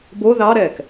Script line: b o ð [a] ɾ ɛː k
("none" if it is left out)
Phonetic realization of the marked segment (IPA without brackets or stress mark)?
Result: ɑ